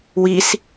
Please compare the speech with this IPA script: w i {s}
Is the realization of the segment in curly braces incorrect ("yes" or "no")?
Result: no